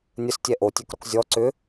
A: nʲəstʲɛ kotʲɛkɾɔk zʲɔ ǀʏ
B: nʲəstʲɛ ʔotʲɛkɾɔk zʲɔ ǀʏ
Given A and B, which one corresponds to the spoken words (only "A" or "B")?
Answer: B